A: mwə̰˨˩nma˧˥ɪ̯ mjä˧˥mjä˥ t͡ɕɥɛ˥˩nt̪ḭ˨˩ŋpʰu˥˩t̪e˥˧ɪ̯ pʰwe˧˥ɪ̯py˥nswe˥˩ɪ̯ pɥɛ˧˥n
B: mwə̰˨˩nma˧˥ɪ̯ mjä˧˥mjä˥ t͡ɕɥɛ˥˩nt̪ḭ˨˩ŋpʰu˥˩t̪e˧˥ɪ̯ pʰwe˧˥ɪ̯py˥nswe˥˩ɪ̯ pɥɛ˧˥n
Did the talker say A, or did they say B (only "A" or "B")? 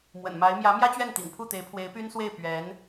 B